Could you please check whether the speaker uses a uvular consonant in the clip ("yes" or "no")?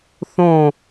no